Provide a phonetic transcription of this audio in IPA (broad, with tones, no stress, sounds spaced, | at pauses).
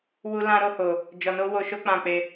w u˦ l ã˦ ɾ o˦ h o˧ | d͡ʒ ɔ˧ n o˦ w o˧ ʃ o˦ k͡p ã˧ k͡p e˧